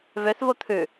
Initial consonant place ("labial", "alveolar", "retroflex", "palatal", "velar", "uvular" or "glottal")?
labial